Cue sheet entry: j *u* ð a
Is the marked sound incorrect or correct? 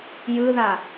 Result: incorrect